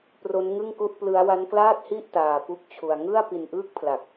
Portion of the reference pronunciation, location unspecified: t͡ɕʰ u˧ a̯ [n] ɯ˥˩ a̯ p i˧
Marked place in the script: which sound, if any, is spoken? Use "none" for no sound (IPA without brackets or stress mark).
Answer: ŋ